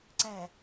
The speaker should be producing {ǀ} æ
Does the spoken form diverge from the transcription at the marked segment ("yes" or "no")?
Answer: no